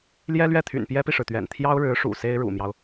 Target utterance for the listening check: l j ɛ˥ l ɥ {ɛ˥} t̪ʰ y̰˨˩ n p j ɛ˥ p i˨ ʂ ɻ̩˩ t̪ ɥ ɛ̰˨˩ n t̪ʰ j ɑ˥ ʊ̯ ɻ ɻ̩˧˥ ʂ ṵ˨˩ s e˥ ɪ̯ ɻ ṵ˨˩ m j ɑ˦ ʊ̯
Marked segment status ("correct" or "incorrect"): incorrect